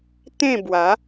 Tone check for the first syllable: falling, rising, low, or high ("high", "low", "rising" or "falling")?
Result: falling